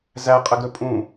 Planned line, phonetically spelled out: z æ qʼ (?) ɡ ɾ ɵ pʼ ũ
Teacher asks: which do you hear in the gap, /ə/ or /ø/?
ə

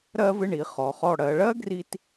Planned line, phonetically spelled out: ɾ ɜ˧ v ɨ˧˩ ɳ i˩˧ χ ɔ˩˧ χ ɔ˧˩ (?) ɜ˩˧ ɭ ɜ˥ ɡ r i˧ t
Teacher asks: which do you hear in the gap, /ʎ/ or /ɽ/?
ɽ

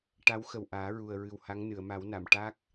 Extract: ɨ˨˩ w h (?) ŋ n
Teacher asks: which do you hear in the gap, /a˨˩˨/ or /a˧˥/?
a˧˥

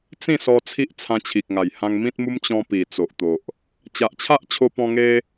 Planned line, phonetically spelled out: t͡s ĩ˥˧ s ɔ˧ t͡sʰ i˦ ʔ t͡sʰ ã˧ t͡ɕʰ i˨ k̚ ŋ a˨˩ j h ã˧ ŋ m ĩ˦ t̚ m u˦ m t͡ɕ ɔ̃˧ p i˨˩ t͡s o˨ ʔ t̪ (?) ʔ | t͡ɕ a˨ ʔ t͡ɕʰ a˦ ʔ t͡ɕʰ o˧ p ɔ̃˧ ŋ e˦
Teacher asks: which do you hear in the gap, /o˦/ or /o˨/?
o˨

